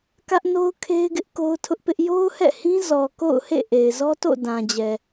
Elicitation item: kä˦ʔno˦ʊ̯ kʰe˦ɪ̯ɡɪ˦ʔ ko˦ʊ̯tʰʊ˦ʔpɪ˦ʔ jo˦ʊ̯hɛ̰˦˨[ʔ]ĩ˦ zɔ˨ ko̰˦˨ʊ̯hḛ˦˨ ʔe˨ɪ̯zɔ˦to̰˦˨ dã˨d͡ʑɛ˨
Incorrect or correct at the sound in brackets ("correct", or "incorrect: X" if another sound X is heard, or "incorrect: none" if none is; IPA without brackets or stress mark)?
incorrect: h